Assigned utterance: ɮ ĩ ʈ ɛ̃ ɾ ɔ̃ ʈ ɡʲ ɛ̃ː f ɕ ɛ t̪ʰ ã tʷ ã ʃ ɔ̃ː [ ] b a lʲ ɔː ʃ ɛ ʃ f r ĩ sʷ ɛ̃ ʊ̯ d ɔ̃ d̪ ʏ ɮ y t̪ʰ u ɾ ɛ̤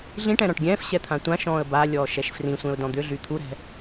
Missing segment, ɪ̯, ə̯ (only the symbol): ə̯